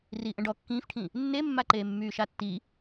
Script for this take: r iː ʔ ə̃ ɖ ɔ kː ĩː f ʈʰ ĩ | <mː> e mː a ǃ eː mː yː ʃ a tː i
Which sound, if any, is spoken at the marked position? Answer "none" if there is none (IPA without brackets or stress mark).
nː